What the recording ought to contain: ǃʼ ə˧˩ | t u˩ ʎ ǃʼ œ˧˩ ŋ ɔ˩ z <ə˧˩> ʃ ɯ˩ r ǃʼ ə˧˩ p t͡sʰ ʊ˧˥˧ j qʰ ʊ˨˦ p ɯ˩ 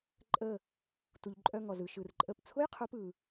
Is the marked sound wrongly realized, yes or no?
yes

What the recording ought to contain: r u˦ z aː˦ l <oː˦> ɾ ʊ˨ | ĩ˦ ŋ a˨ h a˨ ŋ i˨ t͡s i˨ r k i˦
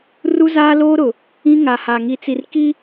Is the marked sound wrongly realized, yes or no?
no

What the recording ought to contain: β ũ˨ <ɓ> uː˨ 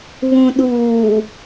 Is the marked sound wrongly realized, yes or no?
yes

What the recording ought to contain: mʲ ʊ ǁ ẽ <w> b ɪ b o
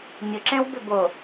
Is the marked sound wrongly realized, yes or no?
no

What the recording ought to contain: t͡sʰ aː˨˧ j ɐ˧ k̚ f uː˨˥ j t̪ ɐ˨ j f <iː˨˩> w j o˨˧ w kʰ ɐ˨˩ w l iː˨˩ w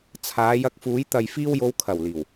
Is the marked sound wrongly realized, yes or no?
yes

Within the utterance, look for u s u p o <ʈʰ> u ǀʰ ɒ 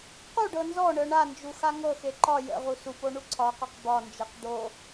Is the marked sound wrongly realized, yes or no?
yes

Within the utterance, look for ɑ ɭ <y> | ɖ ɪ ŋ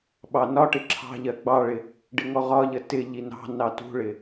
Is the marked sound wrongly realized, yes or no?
yes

